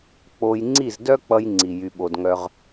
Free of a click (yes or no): no